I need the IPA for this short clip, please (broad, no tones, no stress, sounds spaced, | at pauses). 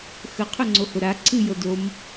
x ə qʰ ʊ ŋ͡ǀ o h ʊ ɾ a ǀʰ ɨ j ɤ d o m